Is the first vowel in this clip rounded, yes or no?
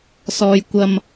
yes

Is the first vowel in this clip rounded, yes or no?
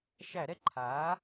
no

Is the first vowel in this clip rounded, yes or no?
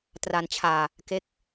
no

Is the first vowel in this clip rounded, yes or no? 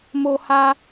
yes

